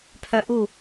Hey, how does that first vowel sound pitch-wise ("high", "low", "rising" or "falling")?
high